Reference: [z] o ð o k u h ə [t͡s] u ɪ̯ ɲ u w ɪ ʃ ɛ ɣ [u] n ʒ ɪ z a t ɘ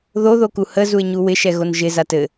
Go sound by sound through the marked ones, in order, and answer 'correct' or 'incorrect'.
incorrect: ð, incorrect: z, incorrect: o

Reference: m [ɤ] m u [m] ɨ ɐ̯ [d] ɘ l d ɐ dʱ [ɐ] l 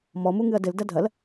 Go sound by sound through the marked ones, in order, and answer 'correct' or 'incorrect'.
incorrect: ɔ, incorrect: ŋ, correct, correct

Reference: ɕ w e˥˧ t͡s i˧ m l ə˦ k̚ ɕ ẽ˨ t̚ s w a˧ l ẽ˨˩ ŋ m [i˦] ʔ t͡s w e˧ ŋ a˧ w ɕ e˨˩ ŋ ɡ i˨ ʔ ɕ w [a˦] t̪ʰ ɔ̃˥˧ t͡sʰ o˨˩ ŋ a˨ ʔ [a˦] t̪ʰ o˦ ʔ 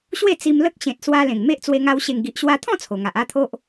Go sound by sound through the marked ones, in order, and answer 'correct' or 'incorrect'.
incorrect: e˦, incorrect: a˧, correct

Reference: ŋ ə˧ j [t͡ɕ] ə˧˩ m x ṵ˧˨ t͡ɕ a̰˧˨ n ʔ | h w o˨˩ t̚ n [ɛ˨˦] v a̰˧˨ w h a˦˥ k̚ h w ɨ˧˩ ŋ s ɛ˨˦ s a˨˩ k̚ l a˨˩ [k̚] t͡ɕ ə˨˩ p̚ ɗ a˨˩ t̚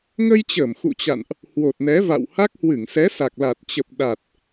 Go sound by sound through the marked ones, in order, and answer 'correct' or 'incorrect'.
correct, correct, incorrect: t̚

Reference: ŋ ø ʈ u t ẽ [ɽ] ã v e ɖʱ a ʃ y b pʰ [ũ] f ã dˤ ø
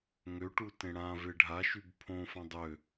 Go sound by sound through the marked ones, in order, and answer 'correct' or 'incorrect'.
correct, incorrect: õ

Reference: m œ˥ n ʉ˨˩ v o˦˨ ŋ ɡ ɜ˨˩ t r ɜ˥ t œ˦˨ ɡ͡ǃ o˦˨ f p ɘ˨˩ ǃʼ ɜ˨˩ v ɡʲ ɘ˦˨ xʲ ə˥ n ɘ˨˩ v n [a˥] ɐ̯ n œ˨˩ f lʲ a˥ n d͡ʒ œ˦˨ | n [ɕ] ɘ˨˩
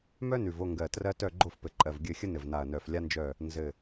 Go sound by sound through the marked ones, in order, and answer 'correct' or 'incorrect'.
incorrect: a˨˩, incorrect: z

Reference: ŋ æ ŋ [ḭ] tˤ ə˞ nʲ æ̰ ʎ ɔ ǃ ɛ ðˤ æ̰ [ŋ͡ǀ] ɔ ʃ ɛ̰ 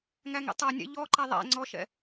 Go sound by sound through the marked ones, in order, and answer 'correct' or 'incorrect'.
correct, correct

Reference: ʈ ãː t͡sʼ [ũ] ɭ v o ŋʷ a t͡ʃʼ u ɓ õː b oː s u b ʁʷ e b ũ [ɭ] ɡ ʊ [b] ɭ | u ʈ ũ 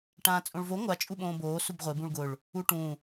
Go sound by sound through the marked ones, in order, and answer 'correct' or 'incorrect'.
incorrect: õ, correct, incorrect: none

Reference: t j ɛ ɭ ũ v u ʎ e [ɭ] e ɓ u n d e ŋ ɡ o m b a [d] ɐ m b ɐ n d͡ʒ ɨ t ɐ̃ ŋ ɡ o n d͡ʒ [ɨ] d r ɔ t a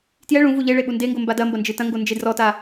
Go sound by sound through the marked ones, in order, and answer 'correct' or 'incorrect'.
correct, correct, incorrect: e

